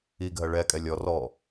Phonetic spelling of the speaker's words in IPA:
i ɡʱ ɜ ɭ ɛ kʼ ɛ lʲ ɔ r ɔ

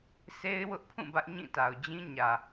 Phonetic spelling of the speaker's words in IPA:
s e˦ ɪ̯ w ʊ˦ ʔ pʰ ũ˦˨ b ä˦ ʔ ɲ ĩ˦˨ t a˨ ʊ̯ d͡ʑ ĩ˦ ɲ ä˨

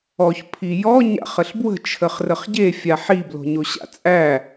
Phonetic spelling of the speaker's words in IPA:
ɔ ç pʰ i j ɔ ɲ a̰ χ ə ɬ b w ə̤ t͡ʃʰ ə χ r ə χ ɟ e fʲ a ħ i b l o̤ ɲ o ɕ a̰ t͡sʼ æ

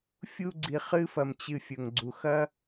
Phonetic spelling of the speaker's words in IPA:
fʲ u˦ ɡ͡ǀ i˨ χ ɨ˦ f ɐ˨ m t͡ɕ ɨ˨ fʲ ɵ˩ ŋ ɡ͡ǀ u˩ x ɐ˥

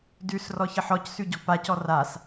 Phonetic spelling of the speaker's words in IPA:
d ʉ s r ɔ ç ə ħ ɔ c s ʉ ɟ ɔ̤ p a c ɔ r a s

